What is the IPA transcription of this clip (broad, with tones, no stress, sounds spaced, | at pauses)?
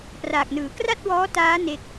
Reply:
p r aː˨˩ k̚ n ɯː˩˦ k r a˥˩ t̚ w ɔː˦˥ t aː˦˥ n e˥˩ k̚